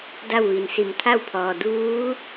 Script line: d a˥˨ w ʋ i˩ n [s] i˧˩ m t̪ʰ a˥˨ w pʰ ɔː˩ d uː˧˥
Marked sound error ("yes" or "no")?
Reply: no